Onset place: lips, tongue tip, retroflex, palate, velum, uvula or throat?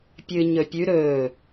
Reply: lips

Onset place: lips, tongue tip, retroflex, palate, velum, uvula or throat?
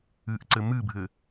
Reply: throat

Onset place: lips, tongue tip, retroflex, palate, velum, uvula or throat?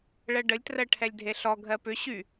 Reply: retroflex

